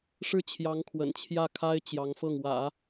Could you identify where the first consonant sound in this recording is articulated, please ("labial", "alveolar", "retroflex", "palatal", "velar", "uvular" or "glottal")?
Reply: retroflex